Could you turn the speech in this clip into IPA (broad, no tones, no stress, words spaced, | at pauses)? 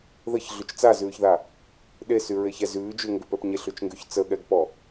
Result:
ðəç ɮʉt͡ʃt͡sazʉːçða | ɗesy ɹeçɛ zʉːd͡ʒʉŋɡʏpɛp ɲeɬʉt͡ʃŋɡyç t͡səɠɛɡpɔ